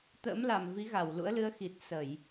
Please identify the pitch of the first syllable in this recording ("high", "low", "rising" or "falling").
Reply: rising